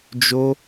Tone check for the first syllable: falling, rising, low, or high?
high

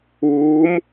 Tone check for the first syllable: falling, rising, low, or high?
rising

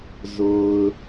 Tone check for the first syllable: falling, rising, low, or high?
low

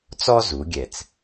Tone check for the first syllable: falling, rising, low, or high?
high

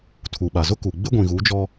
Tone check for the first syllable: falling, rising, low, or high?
low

